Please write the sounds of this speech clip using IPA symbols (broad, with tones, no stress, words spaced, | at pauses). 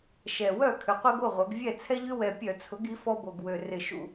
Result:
ʃɛ˨˩wœ˥˩ kʰʏ˩˥qʷe˦ɡo˥˩ʁʷœ˩˧ɡ vʲɛ˥˩ t͡sʰɛ˦ʎʏ˦wɛ˨˩ pʲœ˧˩˧t͡sʰʊ˩˥ɡi˩˥ fɔ˦bo˨˩ɡwø˨˩ rɪ˧˩˧ʃṵ˧˩˧